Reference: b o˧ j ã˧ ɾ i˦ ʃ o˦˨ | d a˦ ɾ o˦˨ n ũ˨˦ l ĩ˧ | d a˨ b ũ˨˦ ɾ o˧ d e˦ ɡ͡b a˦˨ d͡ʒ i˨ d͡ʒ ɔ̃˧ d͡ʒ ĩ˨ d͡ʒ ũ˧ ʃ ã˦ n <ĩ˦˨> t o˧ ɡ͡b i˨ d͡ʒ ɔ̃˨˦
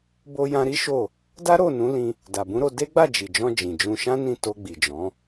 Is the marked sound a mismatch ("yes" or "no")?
no